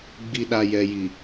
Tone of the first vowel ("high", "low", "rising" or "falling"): low